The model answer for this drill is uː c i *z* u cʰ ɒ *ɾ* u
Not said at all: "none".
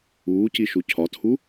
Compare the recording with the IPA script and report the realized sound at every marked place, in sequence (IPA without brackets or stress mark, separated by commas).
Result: ʃ, tʰ